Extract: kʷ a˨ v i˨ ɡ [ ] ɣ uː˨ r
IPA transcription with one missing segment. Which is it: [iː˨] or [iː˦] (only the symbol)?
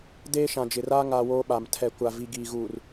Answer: iː˨